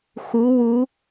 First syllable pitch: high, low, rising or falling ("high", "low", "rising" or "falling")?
rising